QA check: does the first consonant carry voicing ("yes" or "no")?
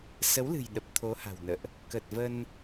no